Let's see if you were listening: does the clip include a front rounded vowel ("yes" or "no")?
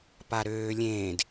yes